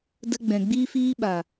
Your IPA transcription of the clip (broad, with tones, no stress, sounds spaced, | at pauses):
d ə˧ ɡ͡b ɛ̃˨ ɡ͡b iː˦ f iː˦ ɓ a˨